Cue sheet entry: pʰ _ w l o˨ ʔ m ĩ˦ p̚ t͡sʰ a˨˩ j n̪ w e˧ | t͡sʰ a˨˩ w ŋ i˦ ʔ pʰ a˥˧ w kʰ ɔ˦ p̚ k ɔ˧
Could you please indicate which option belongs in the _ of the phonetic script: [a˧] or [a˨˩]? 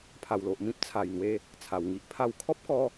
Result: a˨˩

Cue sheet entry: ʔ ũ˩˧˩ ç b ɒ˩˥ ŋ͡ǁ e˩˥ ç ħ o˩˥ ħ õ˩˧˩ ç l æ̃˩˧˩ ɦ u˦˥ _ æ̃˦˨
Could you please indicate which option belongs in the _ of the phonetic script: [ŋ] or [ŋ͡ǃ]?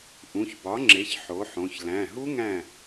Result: ŋ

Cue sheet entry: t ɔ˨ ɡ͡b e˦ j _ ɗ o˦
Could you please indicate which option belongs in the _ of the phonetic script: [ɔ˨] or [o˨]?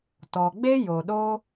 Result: o˨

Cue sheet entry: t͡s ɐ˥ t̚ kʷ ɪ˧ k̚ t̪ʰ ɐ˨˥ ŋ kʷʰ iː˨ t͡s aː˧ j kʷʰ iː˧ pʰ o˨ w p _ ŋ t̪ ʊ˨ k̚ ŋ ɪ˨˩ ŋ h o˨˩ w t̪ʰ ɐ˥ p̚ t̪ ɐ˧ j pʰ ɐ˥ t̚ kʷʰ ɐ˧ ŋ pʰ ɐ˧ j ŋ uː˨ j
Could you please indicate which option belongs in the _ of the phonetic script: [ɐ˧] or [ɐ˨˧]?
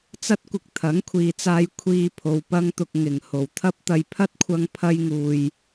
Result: ɐ˧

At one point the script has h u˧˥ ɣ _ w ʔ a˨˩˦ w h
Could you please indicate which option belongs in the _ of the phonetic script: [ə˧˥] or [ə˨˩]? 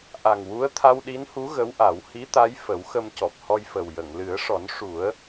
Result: ə˧˥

